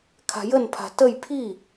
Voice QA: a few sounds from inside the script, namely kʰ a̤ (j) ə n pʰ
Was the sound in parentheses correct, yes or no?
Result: yes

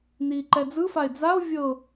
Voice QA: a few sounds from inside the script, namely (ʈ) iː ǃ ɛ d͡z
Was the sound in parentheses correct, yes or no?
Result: no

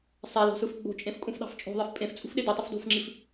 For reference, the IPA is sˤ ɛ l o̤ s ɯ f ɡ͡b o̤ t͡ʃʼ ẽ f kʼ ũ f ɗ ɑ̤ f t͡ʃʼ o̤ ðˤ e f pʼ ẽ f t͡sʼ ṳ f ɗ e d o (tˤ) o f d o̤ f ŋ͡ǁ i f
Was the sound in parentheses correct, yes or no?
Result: yes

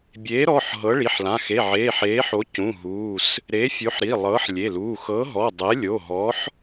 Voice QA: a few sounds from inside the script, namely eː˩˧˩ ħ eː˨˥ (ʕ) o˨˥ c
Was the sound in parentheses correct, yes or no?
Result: no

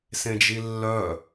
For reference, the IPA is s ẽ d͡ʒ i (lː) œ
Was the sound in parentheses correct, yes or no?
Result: yes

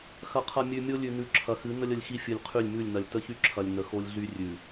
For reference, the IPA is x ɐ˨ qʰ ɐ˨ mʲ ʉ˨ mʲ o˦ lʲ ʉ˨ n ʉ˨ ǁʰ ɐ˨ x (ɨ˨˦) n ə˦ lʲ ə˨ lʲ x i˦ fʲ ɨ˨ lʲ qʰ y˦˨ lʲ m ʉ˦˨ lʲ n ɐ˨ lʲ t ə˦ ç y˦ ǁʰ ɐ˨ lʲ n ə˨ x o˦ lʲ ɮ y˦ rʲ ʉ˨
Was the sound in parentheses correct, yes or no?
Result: yes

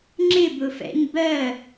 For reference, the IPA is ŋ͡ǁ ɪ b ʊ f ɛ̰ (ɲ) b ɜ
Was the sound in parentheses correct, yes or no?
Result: yes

